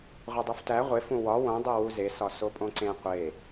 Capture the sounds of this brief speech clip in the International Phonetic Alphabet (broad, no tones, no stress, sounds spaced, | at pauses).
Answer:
ʁʷ e dˤ u f t æ ʁʷ e f ũ w ɒ w õ dˤ i w u z e s ɒ s o pʼ õ ǀ ẽ qʷ e